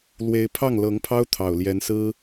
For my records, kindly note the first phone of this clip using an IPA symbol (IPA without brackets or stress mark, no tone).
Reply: l